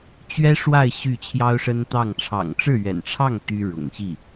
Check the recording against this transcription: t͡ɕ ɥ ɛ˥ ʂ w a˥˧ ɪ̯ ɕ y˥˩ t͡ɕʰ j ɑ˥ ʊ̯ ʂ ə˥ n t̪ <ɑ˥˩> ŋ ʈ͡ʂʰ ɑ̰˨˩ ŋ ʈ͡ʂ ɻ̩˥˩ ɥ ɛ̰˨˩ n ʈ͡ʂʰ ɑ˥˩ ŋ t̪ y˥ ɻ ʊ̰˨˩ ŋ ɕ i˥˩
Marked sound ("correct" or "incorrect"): correct